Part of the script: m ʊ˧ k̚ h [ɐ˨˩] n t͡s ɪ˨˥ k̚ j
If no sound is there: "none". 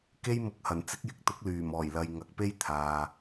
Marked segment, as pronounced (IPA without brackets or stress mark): ɐ˨˩